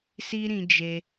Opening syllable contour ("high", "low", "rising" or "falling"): high